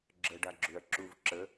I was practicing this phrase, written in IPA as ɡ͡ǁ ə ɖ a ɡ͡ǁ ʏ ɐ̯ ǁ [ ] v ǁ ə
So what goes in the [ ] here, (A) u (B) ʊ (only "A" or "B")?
A